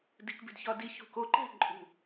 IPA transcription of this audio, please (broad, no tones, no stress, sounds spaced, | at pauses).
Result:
d i k b i̤ d ç ɒ d i ç ṳ k o ǃ æ̤ ǃʼ ṳ